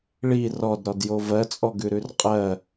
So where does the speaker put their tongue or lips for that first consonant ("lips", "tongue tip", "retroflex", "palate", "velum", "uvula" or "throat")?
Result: retroflex